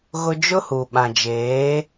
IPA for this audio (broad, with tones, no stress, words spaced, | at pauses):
ɣʊ˦ d͡ʒʊ˦hu˨ɓã˨d͡ʒeː˨˦